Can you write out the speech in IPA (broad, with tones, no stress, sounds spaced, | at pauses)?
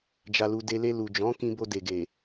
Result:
d͡ʒ a˨ l u˨ d e˧ l e˧ l u˨ d͡ʒ ɔ̃˨˦ k ĩ˧ b o˧ d e˨ ɡ e˨